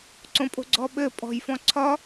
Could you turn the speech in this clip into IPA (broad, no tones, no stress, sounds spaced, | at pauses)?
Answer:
ǀ õ pʼ o̤ ɡ͡ǀ ɔ ɓ ɘ pʼ ɔ̤ j f ɔ̃ ǀʰ ɒ